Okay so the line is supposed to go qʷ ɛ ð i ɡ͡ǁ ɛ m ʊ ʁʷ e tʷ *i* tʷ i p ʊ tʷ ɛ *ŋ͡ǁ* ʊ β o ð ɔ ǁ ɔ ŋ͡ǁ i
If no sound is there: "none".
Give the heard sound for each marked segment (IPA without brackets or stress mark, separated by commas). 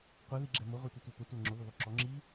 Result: i, ŋ͡ǁ